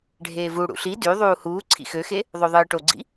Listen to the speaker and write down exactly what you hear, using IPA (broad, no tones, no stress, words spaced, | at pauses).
ɖʱeːvu ɽṵɬi dy ðˤuːhuː ǀʰḭxøxe | ðˤoðˤɯːʈoɡ͡ǀḭ